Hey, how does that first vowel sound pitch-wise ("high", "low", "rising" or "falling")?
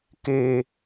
low